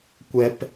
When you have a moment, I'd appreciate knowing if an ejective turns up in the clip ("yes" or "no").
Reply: no